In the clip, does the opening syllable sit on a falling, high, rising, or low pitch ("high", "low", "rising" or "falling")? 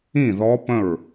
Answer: falling